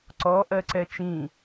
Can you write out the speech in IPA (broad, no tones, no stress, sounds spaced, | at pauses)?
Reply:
ǀ ɔ ʔ ɜ ǀ ɛ t͡ʃ ĩ